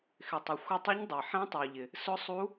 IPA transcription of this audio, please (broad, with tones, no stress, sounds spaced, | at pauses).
x ɪ˩ tˤ ɪ˩ xʷ ɪ˧˩ tˤ ʊ˧˥ ɲ dˤ i˩ ħ ɛ̃˧˥ tˤ i˩ u̯ ʎ ɪ˩ | s ʊ˧˥ sˤ u˧˥